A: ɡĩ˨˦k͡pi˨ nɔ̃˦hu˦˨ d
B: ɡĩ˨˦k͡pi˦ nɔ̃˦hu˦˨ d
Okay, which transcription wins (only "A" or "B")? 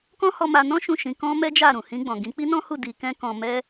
B